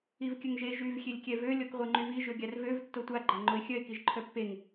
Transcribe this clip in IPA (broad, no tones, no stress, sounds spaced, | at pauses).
i v kʲ ə ŋ ʒ e ʒ y v xʲ e lʲ kʲ ɛ v ø lʲ ɔ k ʁʷ e ŋ͡ǃ y v i ʒ ø ɡʲ a r v ø v tː o tʷ a ɡ͡ǃ a ŋ͡ǃ o ɪ̯ xʲ œ ɪ̯ k i ʒ ǃʰ œ pː e ŋ